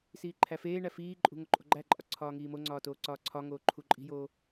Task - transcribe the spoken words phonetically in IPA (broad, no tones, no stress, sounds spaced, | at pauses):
s iː ǃʰ æ f eː ɳ æ f iː ǃʼ ṳ ŋ o ǃʼ o̤ ɡ͡ǃ æ ǃʼ ɒ ǀʰ ɒː ŋ iː m o ŋ͡ǀ ɒː t oː ǀ ɒː ǀʰ ɒ ŋ oː ǃʰ u ǃʼ i̤ j oː